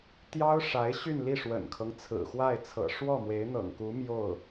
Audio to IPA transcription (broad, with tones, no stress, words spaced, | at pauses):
t̪jɑ˥ʊ̯ʂa˧˥ɪ̯ ɕy˥˧nli˥˩ʂwə̰˨˩nkʰɤ˦ŋ t͡sʰɹ̩˨˩xwa˥˩ɪ̯t͡sʰɤ̰˨˩ ʂwɔ˥˩mwe˧˥ɪ̯n̪ɤ̰˨˩ŋku˧˥ mjo˥˩ʊ̯